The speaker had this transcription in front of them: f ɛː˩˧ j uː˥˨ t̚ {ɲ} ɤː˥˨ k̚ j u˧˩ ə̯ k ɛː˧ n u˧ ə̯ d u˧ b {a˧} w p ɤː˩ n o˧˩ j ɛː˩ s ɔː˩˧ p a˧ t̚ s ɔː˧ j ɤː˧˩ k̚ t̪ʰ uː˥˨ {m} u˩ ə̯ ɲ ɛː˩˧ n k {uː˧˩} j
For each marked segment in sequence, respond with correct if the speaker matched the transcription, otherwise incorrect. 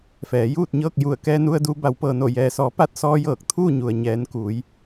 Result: correct, incorrect: a˩˧, incorrect: ɲ, incorrect: uː˩˧

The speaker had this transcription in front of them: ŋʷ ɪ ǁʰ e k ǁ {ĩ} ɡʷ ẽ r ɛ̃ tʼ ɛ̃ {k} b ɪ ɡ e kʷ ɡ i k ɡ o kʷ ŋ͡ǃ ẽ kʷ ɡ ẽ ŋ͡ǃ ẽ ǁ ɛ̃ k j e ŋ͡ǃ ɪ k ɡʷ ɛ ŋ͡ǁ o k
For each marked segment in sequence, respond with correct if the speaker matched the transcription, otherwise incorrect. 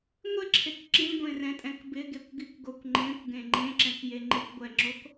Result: correct, correct

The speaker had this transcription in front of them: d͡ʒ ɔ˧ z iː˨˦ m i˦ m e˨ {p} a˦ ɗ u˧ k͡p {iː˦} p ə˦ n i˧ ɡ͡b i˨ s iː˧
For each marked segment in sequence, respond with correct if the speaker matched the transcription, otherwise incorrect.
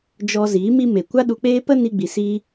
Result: incorrect: kʷ, incorrect: eː˦

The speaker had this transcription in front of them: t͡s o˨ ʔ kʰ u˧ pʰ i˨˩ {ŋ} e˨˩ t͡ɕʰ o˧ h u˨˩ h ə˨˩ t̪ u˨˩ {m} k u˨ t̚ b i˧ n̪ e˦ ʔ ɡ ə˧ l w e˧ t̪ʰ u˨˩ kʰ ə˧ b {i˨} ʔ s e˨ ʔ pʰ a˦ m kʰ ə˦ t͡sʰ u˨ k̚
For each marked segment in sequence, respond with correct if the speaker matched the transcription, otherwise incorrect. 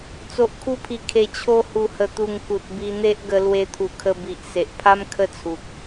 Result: incorrect: kʰ, incorrect: ŋ, correct

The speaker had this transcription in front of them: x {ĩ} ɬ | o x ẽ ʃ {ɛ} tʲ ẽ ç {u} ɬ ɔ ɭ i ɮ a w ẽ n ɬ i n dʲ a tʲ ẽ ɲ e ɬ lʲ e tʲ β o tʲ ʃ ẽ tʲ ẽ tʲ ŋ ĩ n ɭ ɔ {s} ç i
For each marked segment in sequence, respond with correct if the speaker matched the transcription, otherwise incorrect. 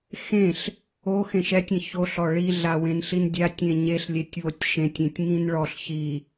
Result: incorrect: ẽ, correct, incorrect: o, incorrect: ɬ

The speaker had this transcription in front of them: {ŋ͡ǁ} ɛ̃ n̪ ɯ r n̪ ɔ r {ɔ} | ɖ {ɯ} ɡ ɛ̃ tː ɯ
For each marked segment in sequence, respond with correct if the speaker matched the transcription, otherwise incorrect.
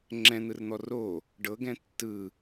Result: correct, incorrect: o, incorrect: ɤ

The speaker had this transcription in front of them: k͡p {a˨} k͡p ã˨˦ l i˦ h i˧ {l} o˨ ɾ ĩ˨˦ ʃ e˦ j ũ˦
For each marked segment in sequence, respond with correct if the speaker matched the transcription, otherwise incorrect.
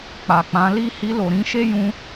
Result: correct, correct

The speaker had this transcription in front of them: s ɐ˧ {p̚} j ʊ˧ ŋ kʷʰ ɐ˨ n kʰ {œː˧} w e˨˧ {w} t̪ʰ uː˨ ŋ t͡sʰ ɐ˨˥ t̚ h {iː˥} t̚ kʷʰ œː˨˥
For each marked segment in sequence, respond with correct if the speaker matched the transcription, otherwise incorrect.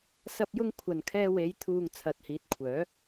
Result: correct, incorrect: ɛː˧, incorrect: j, incorrect: iː˨˥

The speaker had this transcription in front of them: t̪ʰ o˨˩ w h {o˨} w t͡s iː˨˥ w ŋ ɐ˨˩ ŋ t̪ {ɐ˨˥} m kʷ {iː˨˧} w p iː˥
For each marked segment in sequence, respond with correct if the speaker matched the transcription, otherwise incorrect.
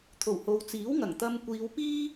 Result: correct, incorrect: ɐ˧, correct

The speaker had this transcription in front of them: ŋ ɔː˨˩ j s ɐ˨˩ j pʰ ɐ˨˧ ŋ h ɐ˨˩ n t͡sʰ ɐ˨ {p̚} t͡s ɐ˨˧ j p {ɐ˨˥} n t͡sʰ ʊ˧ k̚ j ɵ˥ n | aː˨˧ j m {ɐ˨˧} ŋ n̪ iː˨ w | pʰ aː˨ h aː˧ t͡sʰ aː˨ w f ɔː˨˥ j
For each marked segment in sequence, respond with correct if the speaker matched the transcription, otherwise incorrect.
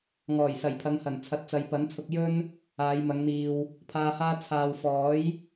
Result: incorrect: t̚, correct, correct

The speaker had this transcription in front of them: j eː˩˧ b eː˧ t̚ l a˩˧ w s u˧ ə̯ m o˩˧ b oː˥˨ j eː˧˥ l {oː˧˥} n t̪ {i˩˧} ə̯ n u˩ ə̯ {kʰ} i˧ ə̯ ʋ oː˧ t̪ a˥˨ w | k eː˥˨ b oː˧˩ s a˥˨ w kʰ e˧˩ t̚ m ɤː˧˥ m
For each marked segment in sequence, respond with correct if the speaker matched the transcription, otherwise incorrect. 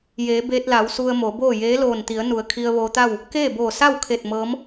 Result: incorrect: oː˧˩, correct, correct

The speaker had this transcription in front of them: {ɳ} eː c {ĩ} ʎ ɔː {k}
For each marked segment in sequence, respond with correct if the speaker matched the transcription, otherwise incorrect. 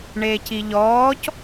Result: correct, incorrect: i, incorrect: c

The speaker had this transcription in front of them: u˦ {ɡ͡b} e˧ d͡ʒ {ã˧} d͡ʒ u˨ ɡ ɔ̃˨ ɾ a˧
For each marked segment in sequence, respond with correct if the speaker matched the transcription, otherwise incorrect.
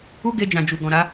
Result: incorrect: ɡ, incorrect: ã˨

